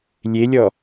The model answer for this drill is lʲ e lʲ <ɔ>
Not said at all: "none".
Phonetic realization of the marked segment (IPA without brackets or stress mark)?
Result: ɔ